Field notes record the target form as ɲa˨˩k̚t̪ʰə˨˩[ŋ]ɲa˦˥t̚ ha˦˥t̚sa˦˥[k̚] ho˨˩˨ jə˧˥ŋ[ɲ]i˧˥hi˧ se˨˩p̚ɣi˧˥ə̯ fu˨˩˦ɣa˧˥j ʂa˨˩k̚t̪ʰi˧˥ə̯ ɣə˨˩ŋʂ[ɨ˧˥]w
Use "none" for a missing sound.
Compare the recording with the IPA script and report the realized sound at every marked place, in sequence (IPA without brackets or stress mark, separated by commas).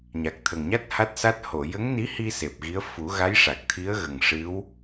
ŋ, t̚, n, ɨ˧˥